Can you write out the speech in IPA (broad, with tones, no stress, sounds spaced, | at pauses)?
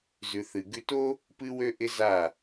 z ʉ˨ θ ɨ˨ ɡ ʉ˧ t o˦ | p ɨ˦ w ø˦ ʔ ɪ˦ z a˦˨